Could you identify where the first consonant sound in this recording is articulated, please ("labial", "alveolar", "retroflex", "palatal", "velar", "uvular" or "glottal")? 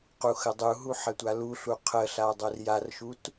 uvular